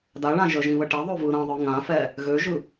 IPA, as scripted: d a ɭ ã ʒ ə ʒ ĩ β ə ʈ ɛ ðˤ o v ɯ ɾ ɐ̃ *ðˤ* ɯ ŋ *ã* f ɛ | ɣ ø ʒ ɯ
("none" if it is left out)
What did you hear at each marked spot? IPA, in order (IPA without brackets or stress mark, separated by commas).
ðˤ, ã